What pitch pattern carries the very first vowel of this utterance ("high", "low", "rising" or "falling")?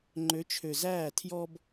rising